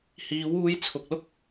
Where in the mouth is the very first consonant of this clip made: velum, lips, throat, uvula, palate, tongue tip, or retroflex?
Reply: throat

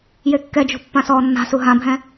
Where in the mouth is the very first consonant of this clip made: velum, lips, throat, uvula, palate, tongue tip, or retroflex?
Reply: palate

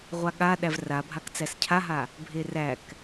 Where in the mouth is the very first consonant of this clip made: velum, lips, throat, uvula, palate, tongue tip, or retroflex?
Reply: uvula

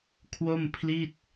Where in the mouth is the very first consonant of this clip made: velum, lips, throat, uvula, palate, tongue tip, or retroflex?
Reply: velum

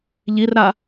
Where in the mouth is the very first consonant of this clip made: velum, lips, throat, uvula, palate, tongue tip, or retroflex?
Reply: palate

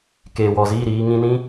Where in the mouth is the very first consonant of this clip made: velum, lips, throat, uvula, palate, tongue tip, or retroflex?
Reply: velum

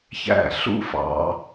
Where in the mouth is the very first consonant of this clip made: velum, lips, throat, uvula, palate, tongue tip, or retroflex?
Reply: palate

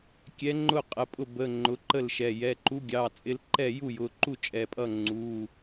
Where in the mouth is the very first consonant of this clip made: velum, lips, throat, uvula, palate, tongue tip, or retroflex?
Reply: velum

